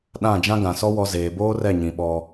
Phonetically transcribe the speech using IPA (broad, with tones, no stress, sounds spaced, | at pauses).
ɗ ã˦˨ d͡ʒ ã˦ ɡ ã˨ s ɔ˦ w ɔ˨ z eː˨ b oː˦ r ɛ˦˨ ɲ ĩ˨ ɓ ɔ˦